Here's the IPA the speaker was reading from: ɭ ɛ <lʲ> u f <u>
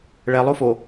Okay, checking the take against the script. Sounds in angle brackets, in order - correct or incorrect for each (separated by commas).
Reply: incorrect, incorrect